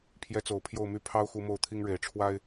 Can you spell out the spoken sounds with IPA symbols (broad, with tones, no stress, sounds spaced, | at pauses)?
pʰ j ɛ˧˥ t͡s o˨˩ ʊ̯ pʰ j o˥˧ ʊ̯ m y˥˩ pʰ ɑ˥ ʊ̯ x u˧˥ m o˥˩ ʊ̯ t̪ʰ i˥ ŋ ɻ e˨˩ ɪ̯ ʈ͡ʂʰ w a˥ ɪ̯